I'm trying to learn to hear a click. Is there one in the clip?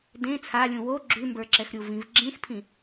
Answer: yes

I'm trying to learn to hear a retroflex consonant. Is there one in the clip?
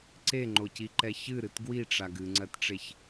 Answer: yes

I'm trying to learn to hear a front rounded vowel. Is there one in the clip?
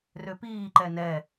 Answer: yes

